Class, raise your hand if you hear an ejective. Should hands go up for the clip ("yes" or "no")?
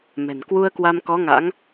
no